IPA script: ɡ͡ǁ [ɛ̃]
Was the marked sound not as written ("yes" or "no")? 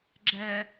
yes